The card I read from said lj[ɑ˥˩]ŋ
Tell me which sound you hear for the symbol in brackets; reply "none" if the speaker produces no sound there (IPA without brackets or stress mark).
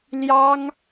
ɑ˥